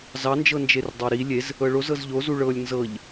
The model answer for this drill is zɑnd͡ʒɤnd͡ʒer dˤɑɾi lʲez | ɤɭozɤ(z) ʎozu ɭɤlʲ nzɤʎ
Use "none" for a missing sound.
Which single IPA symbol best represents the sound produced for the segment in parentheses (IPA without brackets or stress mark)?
z